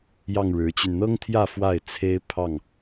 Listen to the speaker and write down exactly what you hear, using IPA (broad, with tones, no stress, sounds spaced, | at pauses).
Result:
j ɑ˥˨ ŋ ɻ ɻ̩˨˦ t͡ɕ y˧ n n̪ ɤ˦ ŋ t̪ʰ j ä˥˨ f w a˥˨ ɪ̯ t͡sʰ e˦ ɪ̯ pʰ ɑ˥˨ ŋ